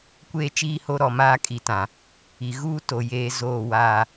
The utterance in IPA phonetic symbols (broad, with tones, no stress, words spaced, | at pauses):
kʷeː˦t͡ʃiː˦ho˦ ɾɔ˨maː˦kʼi˨tã˨ | i˨ ɣuː˦ to˨ jeː˦ zoː˦˨waː˨